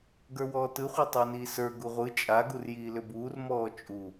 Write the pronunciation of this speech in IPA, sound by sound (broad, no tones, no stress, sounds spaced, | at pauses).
ɡ ə˞ w ɔː t ɯ χʷ ɛ tˤ ə˞ n iː s ə˞ ɡ u ʁʷ ɯ t͡ʃʼ a ɡ u r j iː l ʏ b uː r m ɔː t͡ʃʼ u